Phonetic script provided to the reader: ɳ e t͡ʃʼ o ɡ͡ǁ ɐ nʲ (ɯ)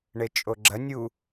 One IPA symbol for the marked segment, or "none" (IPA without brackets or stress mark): u